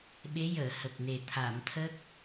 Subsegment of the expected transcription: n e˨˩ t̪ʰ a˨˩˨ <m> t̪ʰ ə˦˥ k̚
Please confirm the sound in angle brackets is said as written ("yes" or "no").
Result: yes